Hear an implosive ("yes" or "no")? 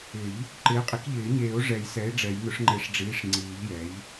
no